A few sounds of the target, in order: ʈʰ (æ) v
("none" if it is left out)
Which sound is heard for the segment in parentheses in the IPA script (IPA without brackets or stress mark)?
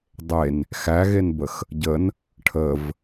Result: ə